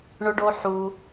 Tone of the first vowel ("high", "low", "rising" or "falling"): high